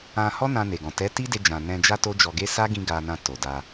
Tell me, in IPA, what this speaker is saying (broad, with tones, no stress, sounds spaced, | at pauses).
ã˧ h ɔ˦ n ã˧ n e˨ ɡ ɔ̃˨ t ɛ˨˦ t i˦ d e˧ d͡ʒ ã˨ n ɛ̃˧ d͡ʒ a˦ t o˦ d͡ʒ ɔ˧ ɡ e˦ s a˦ ɡ ĩ˧ ɡ a˧ n ã˧ t o˨ d a˧